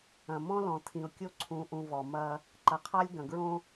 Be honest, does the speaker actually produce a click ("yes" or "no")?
yes